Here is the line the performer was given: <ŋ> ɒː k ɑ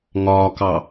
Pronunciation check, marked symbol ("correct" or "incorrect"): correct